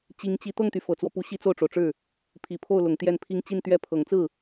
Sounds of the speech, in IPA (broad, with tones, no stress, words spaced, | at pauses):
t͡ɕi˧˥ŋt͡ɕi˧˥ t̪ɤ˥˩ŋt̪y˩ fɤ˨˩t͡swɔ˦pu˧˥ ɕi˥t͡so˥˩ʊ̯ʈ͡ʂo˩ʊ̯ʈ͡ʂɻ̩˥˩ | pʰi˨˩pʰo˥˩ʊ̯ lʊ˨˩ŋt̪jɛ˥˩npʰi˥ŋ t͡ɕi˥˧nt̪ɥɛ˥˩ pʰɤ˨˩ŋt͡sɹ̩˥˩